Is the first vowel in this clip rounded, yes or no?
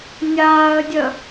no